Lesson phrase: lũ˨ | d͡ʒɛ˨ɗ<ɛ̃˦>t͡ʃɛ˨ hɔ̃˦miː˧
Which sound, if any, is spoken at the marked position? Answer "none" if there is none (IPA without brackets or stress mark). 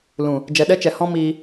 ɛ˦